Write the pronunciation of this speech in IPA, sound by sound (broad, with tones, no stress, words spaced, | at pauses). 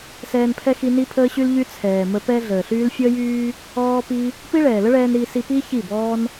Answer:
sɛː˧npʰɛ˦ xi˦ ni˦pʰəː˦ɕy˦lʎy˦ t͡sʰɛː˨mə˧ pɛ˧ ɮəː˨ɬyː˦l fʲəː˦jyː˦ | ɔː˦pi˦ | pi˦ɭɛː˨lə˦ɭɛː˧n ɾi˧si˧ pi˦ çi˦˨bɔː˦n